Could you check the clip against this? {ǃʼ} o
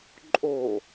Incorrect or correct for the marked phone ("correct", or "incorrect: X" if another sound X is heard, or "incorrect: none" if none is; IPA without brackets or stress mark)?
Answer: correct